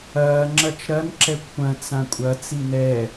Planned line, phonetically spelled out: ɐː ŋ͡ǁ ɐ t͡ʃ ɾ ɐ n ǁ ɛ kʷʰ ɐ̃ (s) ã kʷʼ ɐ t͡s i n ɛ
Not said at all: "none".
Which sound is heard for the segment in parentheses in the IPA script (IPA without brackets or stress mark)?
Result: t͡s